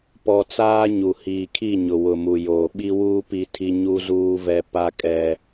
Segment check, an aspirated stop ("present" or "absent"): present